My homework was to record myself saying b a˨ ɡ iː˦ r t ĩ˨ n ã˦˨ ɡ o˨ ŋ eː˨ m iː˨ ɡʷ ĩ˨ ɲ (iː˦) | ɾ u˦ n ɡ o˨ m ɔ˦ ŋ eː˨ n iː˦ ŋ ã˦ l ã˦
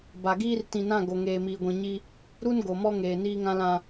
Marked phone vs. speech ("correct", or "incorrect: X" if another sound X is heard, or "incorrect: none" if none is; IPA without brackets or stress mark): incorrect: i˦